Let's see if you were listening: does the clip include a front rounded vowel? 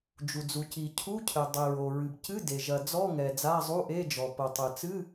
no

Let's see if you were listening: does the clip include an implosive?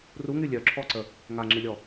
no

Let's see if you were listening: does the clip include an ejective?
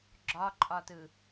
yes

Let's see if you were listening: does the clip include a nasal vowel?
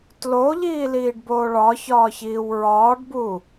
no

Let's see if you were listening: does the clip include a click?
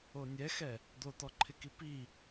yes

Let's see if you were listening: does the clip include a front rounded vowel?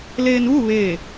no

